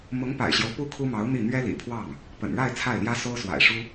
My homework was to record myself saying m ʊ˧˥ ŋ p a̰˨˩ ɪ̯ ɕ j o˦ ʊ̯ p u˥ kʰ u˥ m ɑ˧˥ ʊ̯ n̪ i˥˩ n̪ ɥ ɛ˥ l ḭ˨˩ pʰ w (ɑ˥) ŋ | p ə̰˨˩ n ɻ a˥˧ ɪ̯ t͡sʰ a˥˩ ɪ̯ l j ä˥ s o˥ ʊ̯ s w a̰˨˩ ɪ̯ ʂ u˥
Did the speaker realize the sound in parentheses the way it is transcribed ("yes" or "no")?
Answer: no